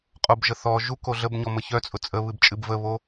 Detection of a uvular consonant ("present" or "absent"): present